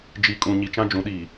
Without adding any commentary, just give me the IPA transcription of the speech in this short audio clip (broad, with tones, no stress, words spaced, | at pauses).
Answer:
d͡ʒi˨kʼũ˨ ɲi˨t͡ʃã˦d͡ʒũ˨˦ɗiː˨